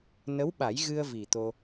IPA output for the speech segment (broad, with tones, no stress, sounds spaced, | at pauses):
n ə˧˥ w ɓ a˨˩˦ j ɣ ɨ˧ ə̯ v i˨˩ t̪ o˧